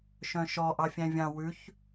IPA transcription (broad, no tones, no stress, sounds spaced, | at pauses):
ʃ œ̃ ʃ ɔ ʔ ɑ fʲ æ̃ vʲ ɑ̃ w ʉ ç